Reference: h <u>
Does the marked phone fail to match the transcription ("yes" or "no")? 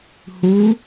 no